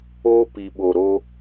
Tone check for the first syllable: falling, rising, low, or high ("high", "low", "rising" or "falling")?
high